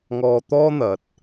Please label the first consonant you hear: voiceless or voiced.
voiced